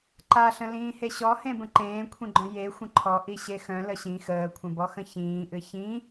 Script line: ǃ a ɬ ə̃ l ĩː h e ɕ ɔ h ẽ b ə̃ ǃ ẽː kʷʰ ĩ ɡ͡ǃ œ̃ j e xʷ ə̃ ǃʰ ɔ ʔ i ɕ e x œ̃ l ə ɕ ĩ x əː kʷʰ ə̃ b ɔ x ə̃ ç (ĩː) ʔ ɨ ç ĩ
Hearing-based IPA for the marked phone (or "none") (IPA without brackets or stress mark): ĩː